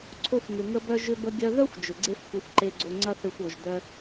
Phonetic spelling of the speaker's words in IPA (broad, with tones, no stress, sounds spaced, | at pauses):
ǀʰ o˧ f ŋ ʏ˩ ŋ ə˧ b œ˧ ʒ ʏ˧ b ə˧ ɡʲ œ˧ ð œ˥ xʷ d͡ʒ ʏ˩ ɡ͡ǀ e˥ f xʷ ɐ˧ xʷ ǃ e˧ ɡ͡ǀ o˧ ŋ͡ǀ ɐ˥ θ e˧ xʷ o˩ ʒ d œ˧